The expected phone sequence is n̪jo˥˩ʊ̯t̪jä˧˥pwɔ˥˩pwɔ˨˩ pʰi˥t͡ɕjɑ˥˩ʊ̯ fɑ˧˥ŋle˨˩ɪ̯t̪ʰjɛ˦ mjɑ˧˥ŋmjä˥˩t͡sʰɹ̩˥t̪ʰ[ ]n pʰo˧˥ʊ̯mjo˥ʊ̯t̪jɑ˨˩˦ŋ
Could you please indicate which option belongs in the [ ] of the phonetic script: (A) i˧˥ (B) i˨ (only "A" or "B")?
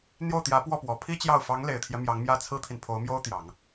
B